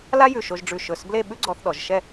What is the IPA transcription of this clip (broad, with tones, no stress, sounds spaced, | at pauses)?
l a˥ j ʉ˧˩ ʃ o˧ ʒ ɖ͡ʐ ʉ˧˩ ʃ ɵ˧˩ s b l e˥˧ ɓ ʉ˥ ɡ͡ǀ ɔ˧ θ ɗ ɔ˩˧ ʒ ʃ ɛ˥˧